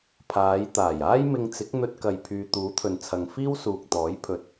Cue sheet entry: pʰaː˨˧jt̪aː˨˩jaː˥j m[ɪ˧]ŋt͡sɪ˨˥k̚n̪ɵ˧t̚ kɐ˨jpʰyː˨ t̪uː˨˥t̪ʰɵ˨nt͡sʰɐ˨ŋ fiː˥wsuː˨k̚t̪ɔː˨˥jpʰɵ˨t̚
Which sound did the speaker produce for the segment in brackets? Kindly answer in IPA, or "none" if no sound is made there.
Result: ɪ˧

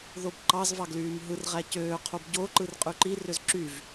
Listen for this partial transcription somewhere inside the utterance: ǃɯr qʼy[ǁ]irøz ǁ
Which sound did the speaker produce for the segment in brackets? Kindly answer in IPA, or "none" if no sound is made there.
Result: ǃ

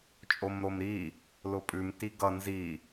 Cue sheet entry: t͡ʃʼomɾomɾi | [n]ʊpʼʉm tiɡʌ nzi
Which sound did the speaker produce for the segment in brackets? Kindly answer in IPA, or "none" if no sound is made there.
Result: l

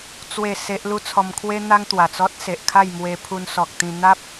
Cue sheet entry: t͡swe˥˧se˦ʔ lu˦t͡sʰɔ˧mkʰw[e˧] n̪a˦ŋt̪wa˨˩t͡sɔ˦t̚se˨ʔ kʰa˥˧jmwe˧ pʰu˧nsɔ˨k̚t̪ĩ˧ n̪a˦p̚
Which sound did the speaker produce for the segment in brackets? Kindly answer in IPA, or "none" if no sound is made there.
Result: e˦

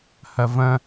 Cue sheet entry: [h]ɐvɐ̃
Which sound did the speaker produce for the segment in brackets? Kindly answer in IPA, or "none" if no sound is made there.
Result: h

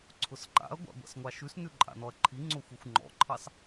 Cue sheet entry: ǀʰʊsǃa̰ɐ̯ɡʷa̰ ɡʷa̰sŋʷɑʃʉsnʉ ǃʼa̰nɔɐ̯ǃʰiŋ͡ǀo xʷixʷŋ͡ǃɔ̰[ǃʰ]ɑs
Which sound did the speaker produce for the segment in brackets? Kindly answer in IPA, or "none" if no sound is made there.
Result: ǃʰ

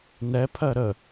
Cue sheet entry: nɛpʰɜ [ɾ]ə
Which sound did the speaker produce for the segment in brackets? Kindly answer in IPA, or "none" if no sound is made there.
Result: ɾ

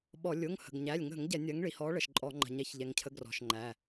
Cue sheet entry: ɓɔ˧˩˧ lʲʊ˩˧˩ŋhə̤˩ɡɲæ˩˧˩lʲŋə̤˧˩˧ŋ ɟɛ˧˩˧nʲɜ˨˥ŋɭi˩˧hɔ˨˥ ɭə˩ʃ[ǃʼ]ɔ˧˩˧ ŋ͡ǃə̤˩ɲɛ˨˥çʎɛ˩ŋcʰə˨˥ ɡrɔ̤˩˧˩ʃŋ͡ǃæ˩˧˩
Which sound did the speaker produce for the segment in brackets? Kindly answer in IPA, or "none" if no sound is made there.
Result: ǃʼ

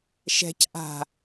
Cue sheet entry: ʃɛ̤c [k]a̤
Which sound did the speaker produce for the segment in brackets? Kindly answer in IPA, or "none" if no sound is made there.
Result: ʔ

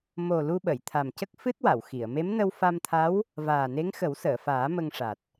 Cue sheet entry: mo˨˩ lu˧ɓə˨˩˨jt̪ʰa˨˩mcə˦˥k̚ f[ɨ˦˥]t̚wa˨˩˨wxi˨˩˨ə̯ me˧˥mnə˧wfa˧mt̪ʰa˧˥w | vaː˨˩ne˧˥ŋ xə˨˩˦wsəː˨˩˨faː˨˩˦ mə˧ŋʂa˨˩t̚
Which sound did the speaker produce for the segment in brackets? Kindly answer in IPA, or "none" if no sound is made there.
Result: ɨ˦˥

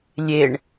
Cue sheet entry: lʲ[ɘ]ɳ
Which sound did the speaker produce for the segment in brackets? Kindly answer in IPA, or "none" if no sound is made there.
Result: e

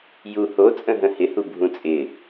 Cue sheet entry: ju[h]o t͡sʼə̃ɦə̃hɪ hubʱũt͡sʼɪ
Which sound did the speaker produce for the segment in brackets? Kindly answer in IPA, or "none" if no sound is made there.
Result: h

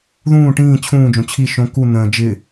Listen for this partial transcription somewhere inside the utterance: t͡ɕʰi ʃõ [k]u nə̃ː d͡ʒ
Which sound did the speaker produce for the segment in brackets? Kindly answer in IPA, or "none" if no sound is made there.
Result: k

